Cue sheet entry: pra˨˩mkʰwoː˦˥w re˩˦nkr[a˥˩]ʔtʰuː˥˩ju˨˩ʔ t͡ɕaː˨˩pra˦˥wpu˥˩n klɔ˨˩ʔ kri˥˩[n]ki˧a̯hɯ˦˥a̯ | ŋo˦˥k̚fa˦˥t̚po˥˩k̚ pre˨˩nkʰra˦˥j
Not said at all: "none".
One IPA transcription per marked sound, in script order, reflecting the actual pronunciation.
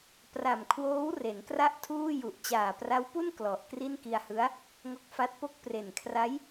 a˥˩, n

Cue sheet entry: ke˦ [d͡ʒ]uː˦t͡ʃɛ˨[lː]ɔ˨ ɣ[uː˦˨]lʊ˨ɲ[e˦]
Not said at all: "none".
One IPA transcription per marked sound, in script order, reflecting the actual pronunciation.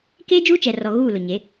d͡ʒ, r, uː˦˨, e˨˦

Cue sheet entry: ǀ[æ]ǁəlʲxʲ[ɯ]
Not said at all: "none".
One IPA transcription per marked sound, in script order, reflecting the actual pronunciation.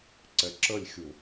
ɛ, u

